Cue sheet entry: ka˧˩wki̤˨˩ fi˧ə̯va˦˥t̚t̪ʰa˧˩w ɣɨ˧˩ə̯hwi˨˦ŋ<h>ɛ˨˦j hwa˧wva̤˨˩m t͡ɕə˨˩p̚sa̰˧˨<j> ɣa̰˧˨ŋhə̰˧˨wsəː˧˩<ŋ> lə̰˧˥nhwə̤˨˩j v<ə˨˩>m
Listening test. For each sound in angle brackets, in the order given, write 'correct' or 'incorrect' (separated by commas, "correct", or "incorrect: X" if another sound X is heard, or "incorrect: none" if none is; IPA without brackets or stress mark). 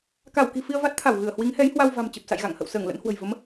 correct, correct, correct, incorrect: ə˨˦